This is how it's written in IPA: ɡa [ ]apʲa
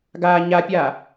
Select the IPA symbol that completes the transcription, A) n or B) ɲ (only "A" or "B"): B